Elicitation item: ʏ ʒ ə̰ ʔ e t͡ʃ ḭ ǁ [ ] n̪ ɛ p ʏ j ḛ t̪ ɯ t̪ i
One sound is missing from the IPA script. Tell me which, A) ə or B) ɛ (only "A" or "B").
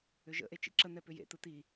A